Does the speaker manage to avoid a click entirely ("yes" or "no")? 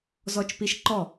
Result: no